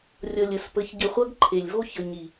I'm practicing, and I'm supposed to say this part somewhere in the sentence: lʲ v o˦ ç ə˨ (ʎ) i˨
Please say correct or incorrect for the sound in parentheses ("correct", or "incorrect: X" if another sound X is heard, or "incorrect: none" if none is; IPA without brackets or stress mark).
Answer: incorrect: ɲ